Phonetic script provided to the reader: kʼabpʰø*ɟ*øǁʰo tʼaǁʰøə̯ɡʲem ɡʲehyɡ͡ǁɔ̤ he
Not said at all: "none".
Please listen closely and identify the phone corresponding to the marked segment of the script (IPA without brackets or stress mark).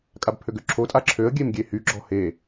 ɡ